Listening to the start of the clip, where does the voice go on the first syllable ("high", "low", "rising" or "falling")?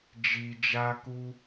low